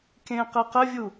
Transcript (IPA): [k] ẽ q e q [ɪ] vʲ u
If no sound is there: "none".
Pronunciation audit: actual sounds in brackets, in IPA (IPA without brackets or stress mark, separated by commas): k, ə